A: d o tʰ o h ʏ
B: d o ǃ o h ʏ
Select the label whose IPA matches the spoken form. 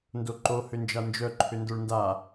B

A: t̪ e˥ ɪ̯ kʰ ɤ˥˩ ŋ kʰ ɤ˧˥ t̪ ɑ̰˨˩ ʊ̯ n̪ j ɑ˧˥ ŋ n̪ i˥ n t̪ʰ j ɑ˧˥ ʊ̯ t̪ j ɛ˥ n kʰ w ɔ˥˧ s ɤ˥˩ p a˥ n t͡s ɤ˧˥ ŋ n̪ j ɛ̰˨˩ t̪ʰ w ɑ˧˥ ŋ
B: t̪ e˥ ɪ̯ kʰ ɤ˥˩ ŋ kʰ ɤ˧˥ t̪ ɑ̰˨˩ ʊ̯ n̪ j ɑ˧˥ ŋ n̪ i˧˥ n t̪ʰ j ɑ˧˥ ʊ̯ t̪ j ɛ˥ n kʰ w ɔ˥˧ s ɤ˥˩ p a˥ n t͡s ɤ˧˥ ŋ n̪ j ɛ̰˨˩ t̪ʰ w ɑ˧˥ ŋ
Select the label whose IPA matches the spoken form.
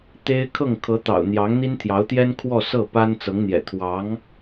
A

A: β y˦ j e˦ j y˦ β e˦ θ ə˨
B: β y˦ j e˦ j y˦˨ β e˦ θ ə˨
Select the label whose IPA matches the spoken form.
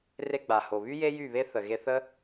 B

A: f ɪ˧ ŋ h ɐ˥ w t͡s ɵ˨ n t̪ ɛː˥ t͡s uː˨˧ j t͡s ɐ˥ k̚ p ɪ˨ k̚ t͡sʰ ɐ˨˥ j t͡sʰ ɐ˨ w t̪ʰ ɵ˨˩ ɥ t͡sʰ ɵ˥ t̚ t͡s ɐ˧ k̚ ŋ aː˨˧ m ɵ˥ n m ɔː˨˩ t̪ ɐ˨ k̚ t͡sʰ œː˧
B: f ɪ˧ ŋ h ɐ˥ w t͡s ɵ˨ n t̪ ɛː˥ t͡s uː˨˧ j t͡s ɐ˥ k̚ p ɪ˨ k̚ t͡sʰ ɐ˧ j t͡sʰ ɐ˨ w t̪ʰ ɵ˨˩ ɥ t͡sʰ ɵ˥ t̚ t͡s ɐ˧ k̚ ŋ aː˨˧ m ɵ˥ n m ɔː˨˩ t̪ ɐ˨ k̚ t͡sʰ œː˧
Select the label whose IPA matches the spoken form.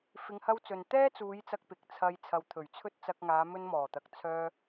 B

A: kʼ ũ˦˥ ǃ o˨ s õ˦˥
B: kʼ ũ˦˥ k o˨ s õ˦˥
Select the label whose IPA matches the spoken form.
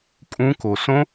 B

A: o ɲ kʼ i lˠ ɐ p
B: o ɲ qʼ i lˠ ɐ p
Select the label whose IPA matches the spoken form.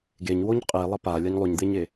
B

